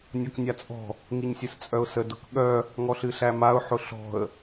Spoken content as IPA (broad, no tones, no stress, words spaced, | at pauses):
nʲɔknʲat͡sʼɔ̤ | ŋiɲsʲɨst͡sʼœʊ̯sə dʊkɠœ | ŋɔɬɨɬæmaʊ̯ ħʊɬɔ̤ə̯